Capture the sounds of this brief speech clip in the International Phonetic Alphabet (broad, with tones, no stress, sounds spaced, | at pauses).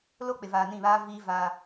l o˦ k͡p ɪ˨ v aː˨ n ĩ˦˨ β aː˦ v iː˦ v a˦